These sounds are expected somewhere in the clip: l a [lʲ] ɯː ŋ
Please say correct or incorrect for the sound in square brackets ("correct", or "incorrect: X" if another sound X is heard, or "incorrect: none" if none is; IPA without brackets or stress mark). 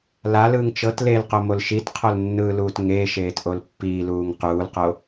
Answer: incorrect: l